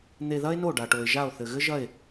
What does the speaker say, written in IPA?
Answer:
n̪e˧ðɐ˥e̯no˥˩ ɖa˩ʈo˩e̯ʒa˥˩o̯ θɘ˩ɣɘ˥ʒɐ˥˩e̯

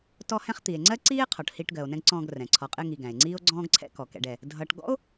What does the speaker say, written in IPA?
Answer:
tɔ˦ hɛ̃˦χt̪i˩e̯ ŋ͡ǀɜ˥ǀiː˥e̯qʰɔ˩ʈ hiː˦ʈɡɜ˨o̯nɛ̃˥ɡǀɔ̃ː˦ɡ rɛ̃˩ǀʰɔ˨qʼɪ˦ŋi˨ ɡæ̃˩e̯ŋ͡ǀiː˥o̯ɡ͡ǀɔ̃ː˥ɡǀʰɛ̰˥ kɔ˩kɛ̰˨ɖɛ˩ | dʱʌː˨ʈ ɡɔ̰˥o̯

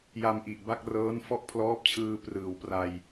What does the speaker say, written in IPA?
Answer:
ja˧mʔi˨˩ʔba˥˩k̚rɤː˦˥n fɔ˥˩ʔpʰlɔː˦˥p̚t͡ɕʰɯː˧ prɯː˩˦wpra˧j

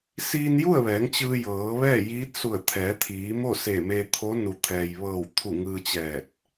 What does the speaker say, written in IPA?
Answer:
siː˧nju˥˨ə̯ʋɛː˩˧ŋ t͡ɕɯː˧jɤː˩˧ʋɛː˥˨ jiː˧˥t̚ su˧˩ə̯t̪ʰɛː˩˧t̪ʰiː˩˧mo˥˨ se˧˩me˧t̪ʰo˧˥ nu˩t̪ʰɛː˩jʋɤː˧˩wt̪ʰu˧˩ ŋɯː˧t͡ɕɛː˧˩t̚

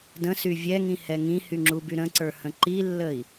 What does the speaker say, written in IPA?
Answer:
də̃sy vʲɛŋĩhɛ ŋĩhyŋ͡ǁuby ɾə̃ǀə˞hə̃ ǃilːəi̯

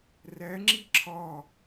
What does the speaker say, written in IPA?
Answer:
ræ ŋ͡ǁiǁʰɒ

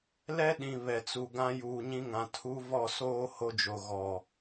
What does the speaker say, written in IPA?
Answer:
lɛ˦ɗĩ˨ βɛ˨t͡su˨ɡã˦ juː˨ɲĩ˦ŋã˨ tʰu˦ vɔ˦˨soː˦ ho˦d͡ʒo˨ ɣɔ˨

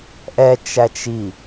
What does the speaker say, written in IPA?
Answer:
ʔɛt͡ʃæt͡ʃ i

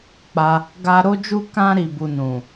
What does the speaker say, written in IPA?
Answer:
k͡pa˧ | ɡa˦ ɾo˦d͡ʒu˦ kã˦ ɾi˧bu˧nũ˨

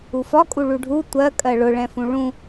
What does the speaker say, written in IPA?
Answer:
ufɒkʼu ɭuɖʱu tʷɜ kʼɜɭʊɭɛ̃fũ ɭũ

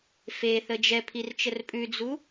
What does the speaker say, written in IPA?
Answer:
feθə d͡ʒɛpʰirt͡ʃər pʼʉd͡zu

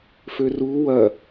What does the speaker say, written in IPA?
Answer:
føru wɐ

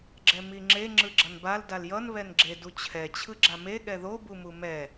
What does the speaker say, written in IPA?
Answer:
ɡ͡ǁɛmiŋ͡ǁe ŋ͡ǁɯɡ͡ǁʌnbal daljʌn βɛnɡ͡ǁe dut͡ɕʰɛ t͡ɕʰɯɡ͡ǁame ɠɛðo bumumɛ

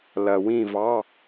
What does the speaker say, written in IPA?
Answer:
lɐ˨wĩ˦˨vɑ˧˥˧

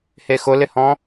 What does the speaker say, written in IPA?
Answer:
hexʊlɪhɔ̃

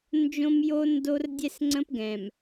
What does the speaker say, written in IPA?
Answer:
nd͡ʒõ˦mjo˦ndo˦r dʲɛ˦sŋ͡ǀə̃˦pɡɛ̃˨m

